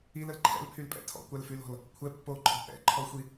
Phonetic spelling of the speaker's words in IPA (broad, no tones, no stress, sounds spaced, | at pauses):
i l ə l ǃʰ ɛ̰ l pʰ y l pʼ ɛ̰ tʰ ɔ̰ kʷ a l f y l ɔ̤ l | kʷʰ ɛ pː o ǃʰ ɔ̤ ʔ ɛ̰ ǃʰ ɔ xʷ i